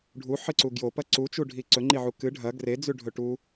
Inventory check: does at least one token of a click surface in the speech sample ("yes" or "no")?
yes